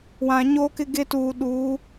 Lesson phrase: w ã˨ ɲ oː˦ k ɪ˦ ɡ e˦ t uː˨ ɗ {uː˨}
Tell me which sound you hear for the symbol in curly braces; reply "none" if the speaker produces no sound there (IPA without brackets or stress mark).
uː˨˦